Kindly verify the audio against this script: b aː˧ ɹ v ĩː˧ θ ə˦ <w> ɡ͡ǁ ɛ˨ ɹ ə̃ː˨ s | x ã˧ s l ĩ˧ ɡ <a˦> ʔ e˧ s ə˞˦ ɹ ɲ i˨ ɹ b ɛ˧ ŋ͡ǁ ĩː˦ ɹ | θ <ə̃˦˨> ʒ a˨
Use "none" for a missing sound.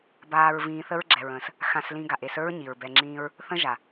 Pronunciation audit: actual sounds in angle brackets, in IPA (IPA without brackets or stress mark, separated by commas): ɹ, a˨, ə̃˦